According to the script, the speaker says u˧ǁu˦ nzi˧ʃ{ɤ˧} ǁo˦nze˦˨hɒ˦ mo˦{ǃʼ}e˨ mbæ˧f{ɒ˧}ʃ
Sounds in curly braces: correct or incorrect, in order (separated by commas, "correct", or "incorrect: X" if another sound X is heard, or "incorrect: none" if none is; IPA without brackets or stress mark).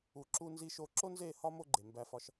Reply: incorrect: o˧, incorrect: ɡ͡ǃ, correct